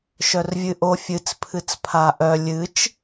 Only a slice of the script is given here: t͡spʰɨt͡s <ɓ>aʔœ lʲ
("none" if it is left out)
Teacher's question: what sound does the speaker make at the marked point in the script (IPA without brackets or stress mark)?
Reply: pʰ